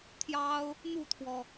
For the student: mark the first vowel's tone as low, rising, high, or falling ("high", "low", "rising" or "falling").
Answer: high